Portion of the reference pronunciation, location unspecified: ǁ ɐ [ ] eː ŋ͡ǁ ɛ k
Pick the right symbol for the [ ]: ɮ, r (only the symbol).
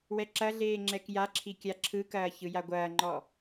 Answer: ɮ